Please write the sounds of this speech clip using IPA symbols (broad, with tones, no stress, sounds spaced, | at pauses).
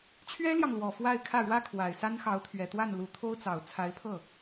t͡ɕʰ ɥ ɛ˥ l j ɑ˨ ŋ l w ɔ˨˩ f w a˥˧ ɪ̯ kʰ ä˥˩ ɻ w ä˥ kʰ w a˨˩ ɪ̯ s a˥ n x ɑ˧˥ ʊ̯ t̪ʰ ɥ ɛ˨˩ t̪ w a˥˩ n l u˧˥ t̪ʰ o˥ ʊ̯ t͡s ɑ˨˩ ʊ̯ t͡sʰ a˧˥ ɪ̯ pʰ ɤ˥˩